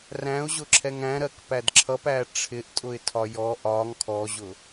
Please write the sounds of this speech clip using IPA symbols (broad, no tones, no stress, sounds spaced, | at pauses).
r æ̃ ʊ̯ ʑ ʊ ǁʰ ɛ ŋ æ̃ ɾ ɜ k p æ d ǁʰ ʌ p æ ʈ͡ʂʰ ɪ ʔ tʼ ʊ ɪ̯ tʰ ɒ j ɔ ʔ ɒ ŋ kʰ ɔ ʑ ʊ